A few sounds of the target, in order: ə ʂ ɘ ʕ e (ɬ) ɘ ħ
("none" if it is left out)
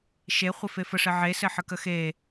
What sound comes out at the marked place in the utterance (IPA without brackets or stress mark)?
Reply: s